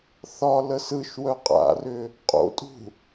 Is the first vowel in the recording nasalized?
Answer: no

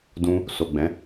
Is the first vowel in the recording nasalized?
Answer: yes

